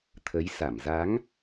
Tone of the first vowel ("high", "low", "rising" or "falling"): rising